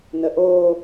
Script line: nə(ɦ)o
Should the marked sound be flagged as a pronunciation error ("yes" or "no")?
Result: yes